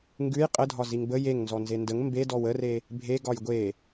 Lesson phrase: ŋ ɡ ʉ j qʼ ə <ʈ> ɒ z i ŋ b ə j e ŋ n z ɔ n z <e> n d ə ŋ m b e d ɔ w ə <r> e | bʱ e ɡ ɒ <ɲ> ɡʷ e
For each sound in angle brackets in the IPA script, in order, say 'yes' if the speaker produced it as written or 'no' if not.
no, yes, yes, no

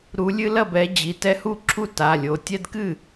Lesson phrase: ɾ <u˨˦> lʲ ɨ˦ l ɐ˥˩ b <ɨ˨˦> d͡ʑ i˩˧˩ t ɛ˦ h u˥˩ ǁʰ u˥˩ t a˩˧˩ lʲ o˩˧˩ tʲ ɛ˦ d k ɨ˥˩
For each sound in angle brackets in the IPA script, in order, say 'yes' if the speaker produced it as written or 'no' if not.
yes, no

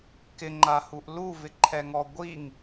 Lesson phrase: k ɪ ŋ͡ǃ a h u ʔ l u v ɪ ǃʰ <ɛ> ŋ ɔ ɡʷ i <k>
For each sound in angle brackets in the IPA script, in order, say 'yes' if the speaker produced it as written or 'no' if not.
yes, no

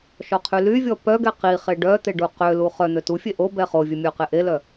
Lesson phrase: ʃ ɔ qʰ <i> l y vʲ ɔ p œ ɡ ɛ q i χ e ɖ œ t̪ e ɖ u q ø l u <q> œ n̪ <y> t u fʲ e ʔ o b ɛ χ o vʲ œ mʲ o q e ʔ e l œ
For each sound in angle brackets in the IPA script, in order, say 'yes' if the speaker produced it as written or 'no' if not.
no, no, no

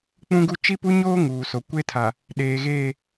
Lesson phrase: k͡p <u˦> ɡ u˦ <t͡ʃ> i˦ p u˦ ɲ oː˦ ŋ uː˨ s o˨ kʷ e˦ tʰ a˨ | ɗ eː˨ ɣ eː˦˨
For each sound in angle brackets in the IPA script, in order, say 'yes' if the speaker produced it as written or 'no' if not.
no, yes

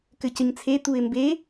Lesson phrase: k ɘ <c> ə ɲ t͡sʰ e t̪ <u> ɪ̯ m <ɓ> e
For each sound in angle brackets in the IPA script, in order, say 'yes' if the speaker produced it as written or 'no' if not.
yes, yes, no

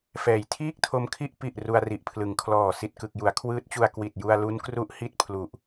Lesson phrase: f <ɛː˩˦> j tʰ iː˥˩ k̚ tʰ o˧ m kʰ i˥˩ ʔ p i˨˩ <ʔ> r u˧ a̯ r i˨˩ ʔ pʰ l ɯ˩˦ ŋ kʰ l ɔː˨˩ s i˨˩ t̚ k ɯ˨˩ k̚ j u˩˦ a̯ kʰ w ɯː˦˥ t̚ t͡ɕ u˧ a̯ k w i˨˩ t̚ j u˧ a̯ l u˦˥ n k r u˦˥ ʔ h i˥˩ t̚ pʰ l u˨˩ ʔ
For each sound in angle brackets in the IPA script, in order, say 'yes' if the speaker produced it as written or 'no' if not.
yes, yes

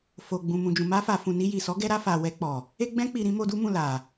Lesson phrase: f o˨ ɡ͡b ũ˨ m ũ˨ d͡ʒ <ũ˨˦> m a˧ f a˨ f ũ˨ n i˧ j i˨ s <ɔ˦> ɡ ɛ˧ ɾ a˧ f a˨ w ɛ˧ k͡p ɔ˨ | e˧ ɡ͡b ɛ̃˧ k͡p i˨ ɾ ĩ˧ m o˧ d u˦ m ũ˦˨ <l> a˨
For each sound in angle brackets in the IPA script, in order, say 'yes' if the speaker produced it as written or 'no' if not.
no, no, yes

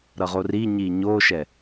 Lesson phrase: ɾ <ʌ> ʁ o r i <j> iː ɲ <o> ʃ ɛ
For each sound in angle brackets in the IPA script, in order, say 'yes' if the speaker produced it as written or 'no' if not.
yes, no, yes

